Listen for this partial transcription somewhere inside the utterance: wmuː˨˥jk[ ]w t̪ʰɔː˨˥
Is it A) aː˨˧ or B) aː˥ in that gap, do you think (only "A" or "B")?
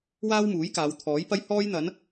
A